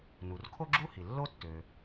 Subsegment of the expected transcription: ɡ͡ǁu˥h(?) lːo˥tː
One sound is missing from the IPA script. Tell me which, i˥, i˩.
i˩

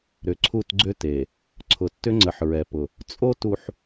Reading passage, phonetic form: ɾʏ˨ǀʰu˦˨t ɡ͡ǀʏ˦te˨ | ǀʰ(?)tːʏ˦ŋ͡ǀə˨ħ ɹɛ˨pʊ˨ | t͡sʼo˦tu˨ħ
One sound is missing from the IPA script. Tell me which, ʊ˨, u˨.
ʊ˨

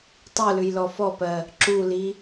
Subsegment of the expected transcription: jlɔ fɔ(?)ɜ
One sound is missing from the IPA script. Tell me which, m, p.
p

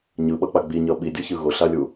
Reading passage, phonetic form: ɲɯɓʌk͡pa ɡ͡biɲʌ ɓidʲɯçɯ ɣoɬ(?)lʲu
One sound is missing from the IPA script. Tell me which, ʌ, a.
a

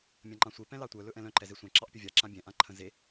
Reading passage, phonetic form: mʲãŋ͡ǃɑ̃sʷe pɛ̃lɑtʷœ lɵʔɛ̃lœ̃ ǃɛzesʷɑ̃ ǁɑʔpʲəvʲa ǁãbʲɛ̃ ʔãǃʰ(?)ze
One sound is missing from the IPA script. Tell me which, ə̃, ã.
ə̃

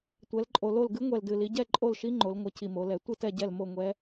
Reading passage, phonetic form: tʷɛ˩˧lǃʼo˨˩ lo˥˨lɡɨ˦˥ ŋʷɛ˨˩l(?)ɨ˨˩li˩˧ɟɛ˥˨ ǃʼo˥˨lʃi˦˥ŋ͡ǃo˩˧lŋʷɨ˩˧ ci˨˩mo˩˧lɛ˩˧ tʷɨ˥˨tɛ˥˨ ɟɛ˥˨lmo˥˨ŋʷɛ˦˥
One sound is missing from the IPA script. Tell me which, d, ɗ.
d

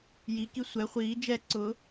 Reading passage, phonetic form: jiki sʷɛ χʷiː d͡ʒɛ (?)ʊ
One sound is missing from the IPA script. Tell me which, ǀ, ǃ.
ǀ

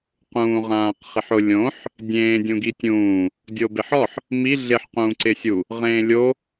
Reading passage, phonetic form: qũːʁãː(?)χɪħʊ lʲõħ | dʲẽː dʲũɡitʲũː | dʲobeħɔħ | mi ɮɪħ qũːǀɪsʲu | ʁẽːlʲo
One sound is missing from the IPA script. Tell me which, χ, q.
q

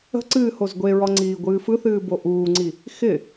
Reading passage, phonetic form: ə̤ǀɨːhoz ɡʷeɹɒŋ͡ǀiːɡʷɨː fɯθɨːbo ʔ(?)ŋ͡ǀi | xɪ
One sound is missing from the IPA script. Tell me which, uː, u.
uː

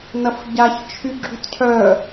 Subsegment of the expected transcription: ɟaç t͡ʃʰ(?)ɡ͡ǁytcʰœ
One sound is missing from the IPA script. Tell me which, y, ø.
y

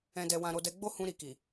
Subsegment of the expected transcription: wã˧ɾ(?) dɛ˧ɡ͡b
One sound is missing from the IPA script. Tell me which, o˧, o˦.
o˧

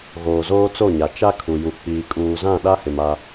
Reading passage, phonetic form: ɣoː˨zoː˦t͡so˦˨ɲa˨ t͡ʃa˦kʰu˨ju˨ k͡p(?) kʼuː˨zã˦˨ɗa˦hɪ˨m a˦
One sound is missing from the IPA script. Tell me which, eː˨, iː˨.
iː˨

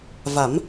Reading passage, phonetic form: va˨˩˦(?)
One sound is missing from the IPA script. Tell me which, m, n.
m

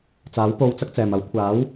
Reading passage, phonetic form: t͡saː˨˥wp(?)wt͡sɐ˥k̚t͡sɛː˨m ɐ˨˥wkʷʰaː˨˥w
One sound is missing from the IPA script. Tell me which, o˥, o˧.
o˧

